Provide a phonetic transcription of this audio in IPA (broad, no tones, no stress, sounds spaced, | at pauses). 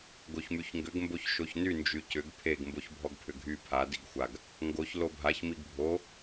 ɡ o ç m y ç ŋ ɡ ʏ ɡ m b o ç ʃ o ç n y n d͡ʒ y c ʏ ɡ pʰ e ɡ m b o ç bʱ ɔ ɡ pʰ ʏ ɡʱ y pʰ a d i ɡ xʷ a ɡ | ŋ ɡ o ç l o bʱ a ç m i ɡ bʱ o